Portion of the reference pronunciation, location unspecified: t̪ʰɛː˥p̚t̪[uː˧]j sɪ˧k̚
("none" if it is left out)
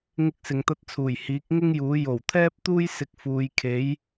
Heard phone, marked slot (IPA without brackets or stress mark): uː˥